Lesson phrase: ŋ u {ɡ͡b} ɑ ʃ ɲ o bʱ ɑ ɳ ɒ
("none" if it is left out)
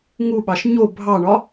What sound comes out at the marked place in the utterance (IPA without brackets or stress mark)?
ɓ